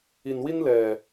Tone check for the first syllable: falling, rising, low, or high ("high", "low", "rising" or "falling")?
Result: low